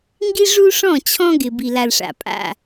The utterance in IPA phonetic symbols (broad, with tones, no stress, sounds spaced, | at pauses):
ŋ ɡ i˦ ʐ u˦ ʂ ɔ̃˦˨ t͡ɕʰ ɔ̃˦ ɡ ɪ˨ b i˨ l a˨ l ʂ a̰˨ pʼ a̰˦˨